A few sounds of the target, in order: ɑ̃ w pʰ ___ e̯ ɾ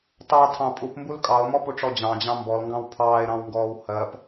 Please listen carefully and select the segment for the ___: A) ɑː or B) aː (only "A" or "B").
A